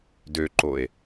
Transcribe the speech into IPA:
døǃoe̯

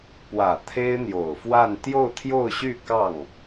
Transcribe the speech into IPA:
pwä˨˩ t̪ʰe˥ɪ̯n̪jo˨˩ʊ̯fwa˥˧n t̪jo˥˧ʊ̯t̪ʰjo˥˧ʊ̯ɕy˥˧ kɑ˥˩ŋ

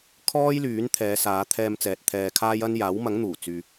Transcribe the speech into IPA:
kʰɔː˥jlyː˨˥n t̪ʰɛː˨˧saː˨˧t̪ʰɛː˧mt͡sɛː˨t̚ t̪ʰɛː˧kʰaː˥jɐ˥n jaː˨˥wmɐ˨˥ŋn̪uː˨˩ t͡syː˨

